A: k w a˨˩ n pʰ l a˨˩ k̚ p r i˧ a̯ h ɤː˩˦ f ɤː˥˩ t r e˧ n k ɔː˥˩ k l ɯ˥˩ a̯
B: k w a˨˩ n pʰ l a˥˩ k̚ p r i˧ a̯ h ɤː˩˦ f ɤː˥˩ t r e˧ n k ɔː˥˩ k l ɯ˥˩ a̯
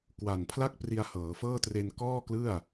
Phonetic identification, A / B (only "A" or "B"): B